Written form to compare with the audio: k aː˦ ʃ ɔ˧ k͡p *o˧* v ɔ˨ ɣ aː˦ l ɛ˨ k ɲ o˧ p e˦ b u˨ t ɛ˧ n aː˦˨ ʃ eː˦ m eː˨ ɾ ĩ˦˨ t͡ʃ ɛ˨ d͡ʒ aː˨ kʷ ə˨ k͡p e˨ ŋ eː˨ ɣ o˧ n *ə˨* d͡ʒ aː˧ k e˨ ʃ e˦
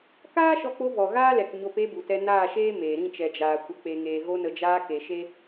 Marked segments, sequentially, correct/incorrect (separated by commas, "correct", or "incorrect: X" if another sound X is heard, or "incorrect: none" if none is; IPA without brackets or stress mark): correct, correct